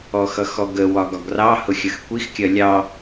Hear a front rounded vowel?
no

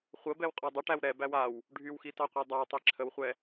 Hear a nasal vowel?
no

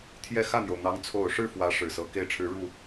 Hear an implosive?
no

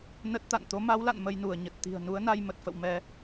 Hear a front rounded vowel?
no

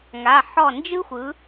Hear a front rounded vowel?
no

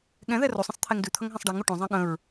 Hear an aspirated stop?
yes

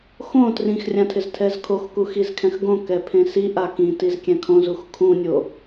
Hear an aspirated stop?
yes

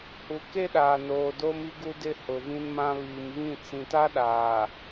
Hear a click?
no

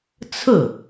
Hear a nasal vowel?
no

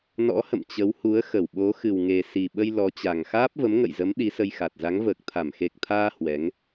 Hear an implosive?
yes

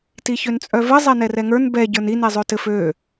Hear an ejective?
yes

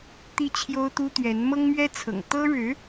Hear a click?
no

